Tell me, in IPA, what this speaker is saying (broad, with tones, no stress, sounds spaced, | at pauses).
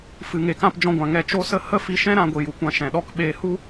f ɨ˨ ŋ e˨ k ã˧ p d͡ʒ ɔ̃˧ ɡʷ ã˨ ŋ ɛ˧ t͡ʃ o˦ s ə˦ h ə˦ f i˧ ʃ ɛ̃˦ ɾ ã˧ ɡʷ i˨ j u˨ kʷ ã˧ ʃ ɛ̃˨ ɗ ɔ˧ k ɓ eː˧ h u˦